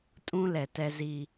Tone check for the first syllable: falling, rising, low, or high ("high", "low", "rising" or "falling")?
high